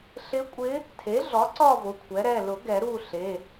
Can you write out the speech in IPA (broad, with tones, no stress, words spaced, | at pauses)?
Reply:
ɬɪ˧˥kʷʼɪ˧˥ | tʰe˩˥ɮɔ˩˥ǀɔ˦˨ vʊ˩˧˩kʷʰɛ˩˥ɾɛ˩˧˩ lʊ˨˩˦ ɡɛ˨˩˦ɾu˦˨ɬe˩˧˩